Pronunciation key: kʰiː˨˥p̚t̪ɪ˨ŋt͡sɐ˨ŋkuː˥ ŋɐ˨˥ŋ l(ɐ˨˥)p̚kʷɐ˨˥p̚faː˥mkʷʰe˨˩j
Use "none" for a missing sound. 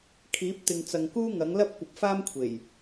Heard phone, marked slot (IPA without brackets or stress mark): ɐ˥